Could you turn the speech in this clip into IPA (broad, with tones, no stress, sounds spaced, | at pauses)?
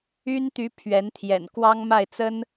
y˥ n t̪ y˧˥ pʰ ɥ ɛ˧˥ n t̪ʰ j ɛ̰˨˩ n k w ɑ˥ ŋ m a˥˩ ɪ̯ t͡s ə˥ n